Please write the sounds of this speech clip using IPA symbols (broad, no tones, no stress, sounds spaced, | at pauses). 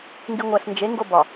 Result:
ŋ ɡ i ŋʷ æ ɬ n d͡ʒ e ŋ ɡ o b ɒ